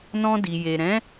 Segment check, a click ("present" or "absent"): absent